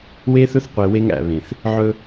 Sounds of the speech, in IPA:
w e˦ θ ɵ˦ θ qʷ e˨ w e˦ ŋ æ̰˨ β ẽ˨ θ | ʕ ɵ˦

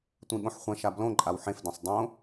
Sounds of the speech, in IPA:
tʷ ĩ ɠ õ ħ χʷ ɛ̃ ʃ a b l õ ǃʼ a w ħ ẽ f d ẽ sˤ dˤ õ

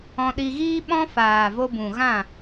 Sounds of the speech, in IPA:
ɔ̃˧ ɗ i˧ ɣ iː˦ ɓ ɔ̃˦ f aː˨ v o˧ b ũ˨ ɣ ã˦˨

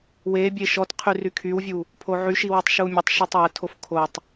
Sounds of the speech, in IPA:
w e bʲ e ʃ ɔ t qʰ y r y kʰ y w vʲ u | pʰ o ʕ y ʃ i w u tˤ ʃ u mʲ ə tˤ ʃ i tˤ w ə tʰ o f kʰ o tˤ

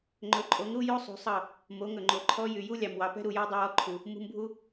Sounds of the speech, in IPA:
ŋ͡ǃ ɵ˨˦ ǃʼ o˨˦ ŋ ɾ u˦ j o˦ sˤ ṳ˨˦ sˤ ɑ˦˨ | m o˨˦ ŋ ɵ˨ ŋ͡ǃ o˨ ǃʰ ɔ˦ j y˨ j u˦ lʲ ɑ˨ m w ɑ˨ p ɛ̤˦ ɾ u˨ j ɑ˦ dˤ o˧ w ɔ˦ ǃʰ u˨ | m ṳ˧ m bʱ u˦

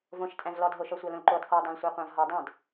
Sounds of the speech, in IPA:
v õ ʃ tʼ æ̃ v l ɔ d ɦ o ʃ ɔ sʷ ɑ l õ l ǃ o d qʷ ɑ dˤ ɑ̃ l sʷ ɑ qʷ ã v ɦ ɔ dˤ æ̃ d

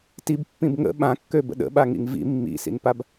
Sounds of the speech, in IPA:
t i b pː ĩ b ŋ ə̰ ɓ ã kː ø b ə̰ ɗ ə̰ ɓ a ŋ ḭ ŋ v ḭ mː ḭ s ḭ n p a b

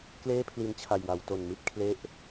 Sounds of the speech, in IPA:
k l eː˥˩ pʰ l i˧ n t͡ɕʰ a˨˩ j w a˩˦ w t o˨˩ n m i˥˩ t̚ kʰ l e˥˩ ʔ

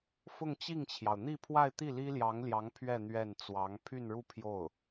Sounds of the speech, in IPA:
f ʊ˥˧ ŋ t͡ɕ i˥˩ ŋ t͡ɕʰ j ɑ˩ ʊ̯ n̪ i˥˧ pʰ w a˥˧ ɪ̯ t̪ i˥˩ l i˥ l j ɑ˧˥ ŋ l j ɑ˧˥ ŋ pʰ ɥ ɛ˥˧ n̪ ɥ ɛ˥˩ n t͡s w ɑ˧˥ ŋ pʰ y˥˧ n ɻ u˥˧ pʰ j o˥˩ ʊ̯

